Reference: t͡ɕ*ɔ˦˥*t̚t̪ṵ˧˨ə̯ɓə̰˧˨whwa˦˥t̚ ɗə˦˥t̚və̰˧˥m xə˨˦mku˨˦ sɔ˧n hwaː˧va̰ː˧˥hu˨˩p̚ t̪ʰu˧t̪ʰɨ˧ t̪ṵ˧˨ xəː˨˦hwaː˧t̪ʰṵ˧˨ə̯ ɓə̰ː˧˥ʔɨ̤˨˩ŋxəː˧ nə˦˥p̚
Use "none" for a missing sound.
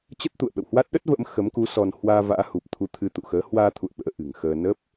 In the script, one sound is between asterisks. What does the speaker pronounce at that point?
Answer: ə˦˥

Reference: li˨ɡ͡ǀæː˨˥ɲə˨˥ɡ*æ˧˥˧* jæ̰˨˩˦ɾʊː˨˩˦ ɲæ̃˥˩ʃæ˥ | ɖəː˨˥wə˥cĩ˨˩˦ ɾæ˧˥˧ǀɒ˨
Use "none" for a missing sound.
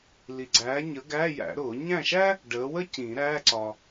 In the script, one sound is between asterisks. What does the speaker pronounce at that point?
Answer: æː˧˥˧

